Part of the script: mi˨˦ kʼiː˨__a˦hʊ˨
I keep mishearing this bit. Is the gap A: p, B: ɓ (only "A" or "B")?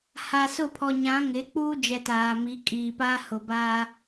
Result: A